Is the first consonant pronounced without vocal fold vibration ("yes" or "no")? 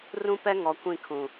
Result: no